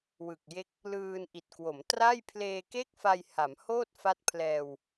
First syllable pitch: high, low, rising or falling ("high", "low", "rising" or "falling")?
low